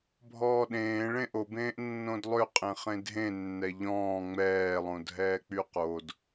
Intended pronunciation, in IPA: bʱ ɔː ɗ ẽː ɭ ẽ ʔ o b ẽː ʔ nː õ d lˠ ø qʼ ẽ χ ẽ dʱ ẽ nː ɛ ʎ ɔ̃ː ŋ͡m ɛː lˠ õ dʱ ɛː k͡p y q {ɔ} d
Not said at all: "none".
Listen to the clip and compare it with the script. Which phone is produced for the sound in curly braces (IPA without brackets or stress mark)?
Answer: o